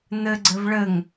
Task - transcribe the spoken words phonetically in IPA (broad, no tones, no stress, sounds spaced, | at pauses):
n̪ ɘ ɡ͡ǀ ɘ v ɭ ɘ ŋ